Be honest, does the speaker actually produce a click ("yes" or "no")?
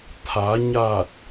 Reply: no